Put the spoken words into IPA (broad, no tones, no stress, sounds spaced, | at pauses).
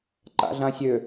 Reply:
ǃ a̰ ɮ ã sʲ ø